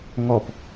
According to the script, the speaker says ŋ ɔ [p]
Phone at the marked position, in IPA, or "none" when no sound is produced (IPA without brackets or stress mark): p